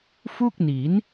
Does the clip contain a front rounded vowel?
no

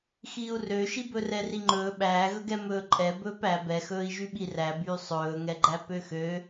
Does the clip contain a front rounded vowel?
yes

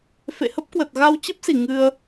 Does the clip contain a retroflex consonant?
no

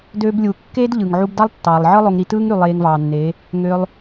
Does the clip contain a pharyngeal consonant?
yes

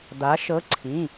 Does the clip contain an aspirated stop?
yes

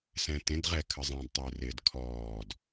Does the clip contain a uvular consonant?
yes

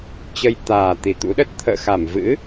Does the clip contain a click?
no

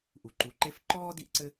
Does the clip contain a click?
yes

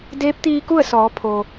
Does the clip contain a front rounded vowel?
no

